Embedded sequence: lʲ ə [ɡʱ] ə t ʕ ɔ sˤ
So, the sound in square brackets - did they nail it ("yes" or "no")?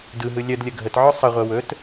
yes